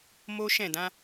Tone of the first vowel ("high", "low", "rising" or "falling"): high